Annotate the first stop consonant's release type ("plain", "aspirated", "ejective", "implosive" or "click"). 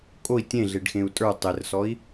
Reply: ejective